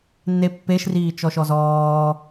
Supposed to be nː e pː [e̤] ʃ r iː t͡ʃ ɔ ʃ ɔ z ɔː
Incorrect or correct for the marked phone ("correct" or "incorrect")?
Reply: incorrect